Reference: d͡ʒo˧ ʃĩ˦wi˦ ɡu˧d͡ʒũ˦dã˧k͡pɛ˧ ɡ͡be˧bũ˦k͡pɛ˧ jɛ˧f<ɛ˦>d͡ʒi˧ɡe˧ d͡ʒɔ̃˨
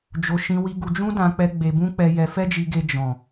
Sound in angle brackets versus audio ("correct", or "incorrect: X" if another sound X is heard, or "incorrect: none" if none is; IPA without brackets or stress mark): correct